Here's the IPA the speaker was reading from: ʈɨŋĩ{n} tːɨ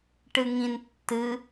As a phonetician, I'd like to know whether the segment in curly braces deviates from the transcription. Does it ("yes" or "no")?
no